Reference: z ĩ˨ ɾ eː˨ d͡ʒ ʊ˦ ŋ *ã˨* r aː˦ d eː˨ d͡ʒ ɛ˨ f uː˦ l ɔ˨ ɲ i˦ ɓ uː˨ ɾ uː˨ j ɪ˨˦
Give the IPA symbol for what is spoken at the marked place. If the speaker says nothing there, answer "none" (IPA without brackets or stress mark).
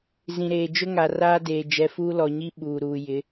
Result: a˨